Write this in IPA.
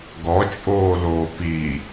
ɡɔt͡ʃʼoːloː pi

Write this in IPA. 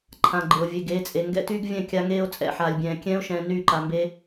ǃʰã˨ɡ͡ǃɪ˨o̯ vʲe˨ɡeː˨˦t͡sʼe˨ ŋɡɛ̰˦tyː˦ɡvʲɛ̃˦˨ kʲa˦ŋeː˦o̯t͡sʼɛ̰˦˨ħaː˨lʲ bʲɛ̃ː˨ kʲɛ̃ː˦o̯ʃɛ̃ː˨ nyː˦˨ǃa˨mbeː˦

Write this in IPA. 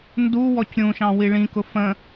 nduwɔc ɾʲũʃɑ̃ wiɭĩkʊ fə̃

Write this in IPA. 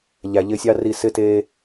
ʎæ˨ʎɪ˧sʲɑ˦ ri˧sɪ˦ te˦

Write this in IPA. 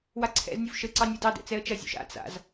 waǀʰɛ̰znʲuv ʃəǀɑnʲ udɑdɛ̰ t͡sɛə̯t͡ʃɐzʲṵʃ a̰ t͡sa̰z

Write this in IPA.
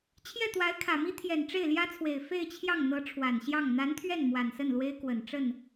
t͡ɕʰjɛ˥˩t̪wa˧˥ɪ̯kʰä˨˩mi˥ t̪ʰjɛ˨˩nʈ͡ʂe˥˩ɪ̯ljä˥t͡sʰwe˨˩ɪ̯ fe˥˧ɪ̯t͡ɕʰjɑ˥˩ŋ n̪ɤ˧˥ʈ͡ʂʰwa˨˩nɕjɑ˥˩ŋ n̪a˧˥nt̪ʰɥɛ˥˩n mwa˨˩nsə˥˩nlwe˥ɪ̯kwə˨˩n ʈ͡ʂə˥˩n

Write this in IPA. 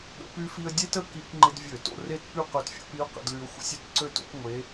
ɠə̰˧py˥fi˥ə̯ dʲe˥tə˥˧ki˧˩˧kŋ͡ǃɪ˧d vʲø˧˩˧to̰˥˧re˥˧tpy˥˧ qø˧tfʲo̰˧pi˧˥ʊ̯ qə̰˧dly˧ʊ̯xʷə̰˧˥sʲy˧t ǀø˥˧to̰˥p ŋʷe˧˥

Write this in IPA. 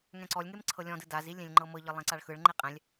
ŋɛ̃ǀɔlʲŋem ǀʰɤlʲɔ̃dɯ dazi lʲẽlʲŋ͡ǃɤmɤʎɤ lˠẽǀaɭxɯɭŋ͡ǃe qʼɛ̃lʲ

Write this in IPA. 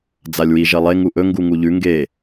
d͡zalʲwi ʒɐlˠe ŋuʔɵ ŋɡuŋuʎʉ ŋɡe

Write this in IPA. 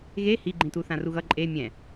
ɣe hiɡ͡ǃĩtu θãruɣʌ ǃʼe mʲɛ̃

